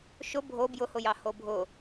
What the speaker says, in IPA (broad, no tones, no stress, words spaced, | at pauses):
ʃʊ bʱo bjʊhʊjɑ hobʱʊ